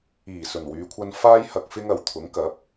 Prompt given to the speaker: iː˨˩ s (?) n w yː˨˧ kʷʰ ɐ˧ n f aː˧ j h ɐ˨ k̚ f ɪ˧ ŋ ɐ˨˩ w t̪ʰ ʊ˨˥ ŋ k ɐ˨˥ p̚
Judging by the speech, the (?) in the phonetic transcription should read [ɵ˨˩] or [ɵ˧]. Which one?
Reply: ɵ˨˩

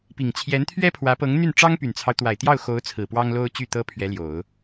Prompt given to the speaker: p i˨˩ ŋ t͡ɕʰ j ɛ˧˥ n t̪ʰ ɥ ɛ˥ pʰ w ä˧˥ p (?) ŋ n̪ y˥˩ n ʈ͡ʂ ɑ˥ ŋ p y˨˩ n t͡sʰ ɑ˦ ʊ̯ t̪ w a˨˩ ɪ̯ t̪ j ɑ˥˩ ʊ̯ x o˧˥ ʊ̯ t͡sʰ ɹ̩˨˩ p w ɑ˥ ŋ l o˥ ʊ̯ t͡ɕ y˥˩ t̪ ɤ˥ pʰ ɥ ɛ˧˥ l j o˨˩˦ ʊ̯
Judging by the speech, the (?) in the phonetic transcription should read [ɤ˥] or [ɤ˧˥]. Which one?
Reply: ɤ˧˥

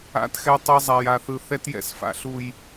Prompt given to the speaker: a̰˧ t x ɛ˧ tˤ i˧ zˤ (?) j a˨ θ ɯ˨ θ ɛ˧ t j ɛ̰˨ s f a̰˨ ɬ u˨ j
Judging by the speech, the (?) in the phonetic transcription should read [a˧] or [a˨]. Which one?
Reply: a˨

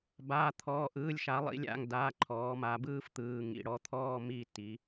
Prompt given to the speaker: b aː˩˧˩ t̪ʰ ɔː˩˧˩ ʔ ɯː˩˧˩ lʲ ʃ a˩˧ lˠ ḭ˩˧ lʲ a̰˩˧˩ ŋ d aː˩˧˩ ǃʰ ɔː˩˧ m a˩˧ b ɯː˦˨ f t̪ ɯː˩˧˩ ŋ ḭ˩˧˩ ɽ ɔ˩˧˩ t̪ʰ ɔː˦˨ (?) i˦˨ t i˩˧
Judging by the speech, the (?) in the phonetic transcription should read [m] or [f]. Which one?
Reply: m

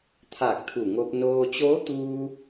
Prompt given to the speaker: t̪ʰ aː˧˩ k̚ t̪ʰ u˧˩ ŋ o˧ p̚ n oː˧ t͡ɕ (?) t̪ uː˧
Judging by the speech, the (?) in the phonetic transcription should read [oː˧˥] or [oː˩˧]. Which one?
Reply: oː˧˥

